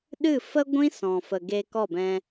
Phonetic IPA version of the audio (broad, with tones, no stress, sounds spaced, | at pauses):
ɗ ɨ˦˨ f ə˦ ɡʷ ĩ˦ s ɔ̃˨ f ə˨ ɡ e˧ k ɔ˦˨ b ɛ̃˧